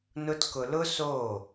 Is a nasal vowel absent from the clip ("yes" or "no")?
yes